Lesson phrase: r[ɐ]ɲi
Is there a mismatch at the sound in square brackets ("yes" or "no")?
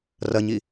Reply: no